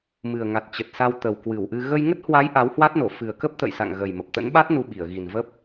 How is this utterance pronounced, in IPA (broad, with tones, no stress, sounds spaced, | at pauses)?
m ɨ˨˩ ə̯ ŋ a˨˩ t̚ t͡ɕ ə˨˩ t̚ s a˧ w t̪ ə˨˩ w k w ɨ˧˩ w ʔ ɨ˧ ɣ ə˧ j ŋ ə˦˥ t̚ h w a˨˦ j ʔ a˨˦ w h w a˦˥ t̚ n o˧˩ f ɨ˨˩ ə̯ k ə˦˥ p̚ t̪ ə̰˧˨ j s a̰˧˨ ŋ ɣ ə˨˩ j m ə˨˩ p̚ t̪ ə̰˧˥ n ɓ a˦˥ t̚ n u˧ ɓ i˧˩ ə̯ ɣ i˨˩ n v ə˦˥ p̚